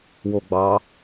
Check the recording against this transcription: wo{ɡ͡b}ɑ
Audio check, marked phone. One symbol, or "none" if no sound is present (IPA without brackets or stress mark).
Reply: ɡ͡b